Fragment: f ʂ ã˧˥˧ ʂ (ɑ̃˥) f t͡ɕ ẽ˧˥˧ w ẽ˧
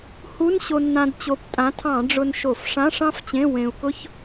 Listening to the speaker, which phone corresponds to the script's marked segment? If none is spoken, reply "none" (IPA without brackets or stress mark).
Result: ɑ̃˥